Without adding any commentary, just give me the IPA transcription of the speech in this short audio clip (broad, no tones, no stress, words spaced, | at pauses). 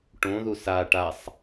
ʈõðu sa ʈasˤ